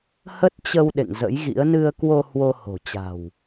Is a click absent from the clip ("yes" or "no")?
yes